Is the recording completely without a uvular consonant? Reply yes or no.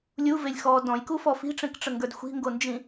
yes